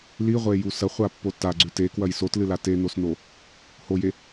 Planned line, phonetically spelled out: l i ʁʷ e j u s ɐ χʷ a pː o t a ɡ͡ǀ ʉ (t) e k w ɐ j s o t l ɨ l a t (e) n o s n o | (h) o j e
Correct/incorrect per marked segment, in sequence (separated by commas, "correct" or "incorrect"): correct, correct, correct